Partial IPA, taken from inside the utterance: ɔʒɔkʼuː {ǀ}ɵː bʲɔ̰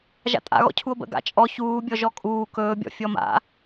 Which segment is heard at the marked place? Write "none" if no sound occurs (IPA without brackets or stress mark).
k